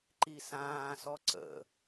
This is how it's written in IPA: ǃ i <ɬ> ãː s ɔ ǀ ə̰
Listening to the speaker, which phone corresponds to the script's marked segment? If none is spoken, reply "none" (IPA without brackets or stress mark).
s